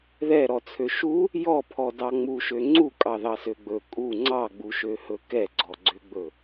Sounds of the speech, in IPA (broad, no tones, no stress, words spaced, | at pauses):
ðɛɾɔt͡sʰø ʃu | jɔpʰɔdɑ ŋ͡muʃø ŋ͡ǀukʼɑðɑsø ɡ͡bɵ kʼu ŋ͡ǀɑɡ͡buʃøhɵ kɛɡ͡ǀɔɡ͡ǀøɡ͡bɵ